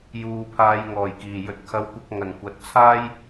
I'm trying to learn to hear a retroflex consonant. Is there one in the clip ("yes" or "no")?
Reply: no